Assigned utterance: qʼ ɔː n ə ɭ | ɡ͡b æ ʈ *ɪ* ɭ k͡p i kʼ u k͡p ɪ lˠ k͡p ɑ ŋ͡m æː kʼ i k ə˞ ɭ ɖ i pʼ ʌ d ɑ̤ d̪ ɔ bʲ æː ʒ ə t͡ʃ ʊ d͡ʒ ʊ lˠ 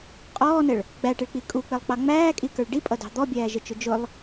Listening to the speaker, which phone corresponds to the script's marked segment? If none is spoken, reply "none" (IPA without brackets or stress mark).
ɪ